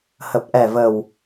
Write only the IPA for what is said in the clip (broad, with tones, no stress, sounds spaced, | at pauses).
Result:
h ə˨˩ p̚ ʔ ɛ˨˩ v ə˨˩ w